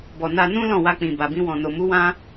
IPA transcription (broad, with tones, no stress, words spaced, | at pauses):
bɔ˨na˧nũ˦ lɔ̃˦˨wa˧k͡pĩ˨ ba˨bĩ˧wɔ̃˨ no˨mu˨˦ wã˦